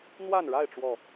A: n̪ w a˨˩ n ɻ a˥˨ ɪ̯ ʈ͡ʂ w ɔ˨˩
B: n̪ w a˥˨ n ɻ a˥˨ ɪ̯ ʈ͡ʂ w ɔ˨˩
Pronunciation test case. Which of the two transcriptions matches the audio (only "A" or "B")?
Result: B